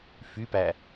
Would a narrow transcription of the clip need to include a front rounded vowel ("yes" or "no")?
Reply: yes